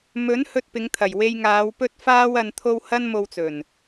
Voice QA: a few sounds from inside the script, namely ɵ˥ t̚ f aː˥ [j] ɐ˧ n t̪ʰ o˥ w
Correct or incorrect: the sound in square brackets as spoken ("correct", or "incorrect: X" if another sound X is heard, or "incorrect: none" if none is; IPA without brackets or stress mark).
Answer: incorrect: w